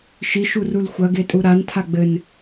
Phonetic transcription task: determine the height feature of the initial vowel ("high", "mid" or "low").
high